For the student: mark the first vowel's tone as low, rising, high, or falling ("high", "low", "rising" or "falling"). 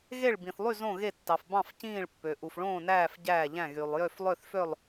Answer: falling